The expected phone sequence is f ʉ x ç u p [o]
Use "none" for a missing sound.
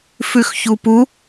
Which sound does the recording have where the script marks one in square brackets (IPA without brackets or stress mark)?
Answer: u